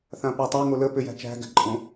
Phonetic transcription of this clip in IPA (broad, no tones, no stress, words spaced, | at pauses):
θãpætˤa ŋolə pʏjæ̤t͡ʃæ̤ ɡæ̤ǃʼõ